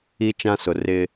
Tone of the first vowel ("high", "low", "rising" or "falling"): high